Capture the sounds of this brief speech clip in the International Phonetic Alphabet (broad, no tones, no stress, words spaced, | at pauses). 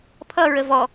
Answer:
pʰʌ ɹəvɔ